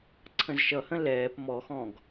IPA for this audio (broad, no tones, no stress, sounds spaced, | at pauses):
ǀʰ ə̃ z ʃ ʌ h ə̃ l ɛː p m ɔ x ɔ̃ ɡ